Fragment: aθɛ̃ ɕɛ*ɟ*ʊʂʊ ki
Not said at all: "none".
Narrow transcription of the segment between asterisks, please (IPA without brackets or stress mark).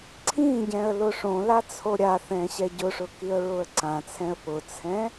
ɟ